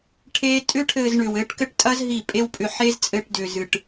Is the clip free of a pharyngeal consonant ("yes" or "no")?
no